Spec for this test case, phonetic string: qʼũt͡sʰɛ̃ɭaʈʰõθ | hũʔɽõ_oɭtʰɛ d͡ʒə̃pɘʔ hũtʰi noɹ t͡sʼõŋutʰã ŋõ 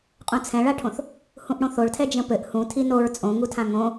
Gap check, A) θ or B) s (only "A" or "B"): A